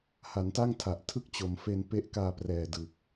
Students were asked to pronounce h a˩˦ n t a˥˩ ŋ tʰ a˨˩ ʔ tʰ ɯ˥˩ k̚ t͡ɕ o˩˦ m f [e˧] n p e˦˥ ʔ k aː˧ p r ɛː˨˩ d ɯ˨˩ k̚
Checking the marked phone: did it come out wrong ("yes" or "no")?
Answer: no